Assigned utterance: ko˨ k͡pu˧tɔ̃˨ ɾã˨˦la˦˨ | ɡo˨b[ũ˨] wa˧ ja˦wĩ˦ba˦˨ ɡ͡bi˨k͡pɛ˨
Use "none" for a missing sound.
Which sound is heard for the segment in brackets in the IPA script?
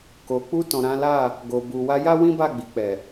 u˨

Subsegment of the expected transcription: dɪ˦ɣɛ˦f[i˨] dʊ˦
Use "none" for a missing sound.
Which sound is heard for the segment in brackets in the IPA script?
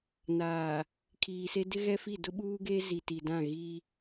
i˦˨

